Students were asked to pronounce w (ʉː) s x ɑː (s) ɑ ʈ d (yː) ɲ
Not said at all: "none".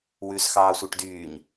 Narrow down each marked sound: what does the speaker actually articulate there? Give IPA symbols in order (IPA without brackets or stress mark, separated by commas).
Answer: ʉː, sʷ, yː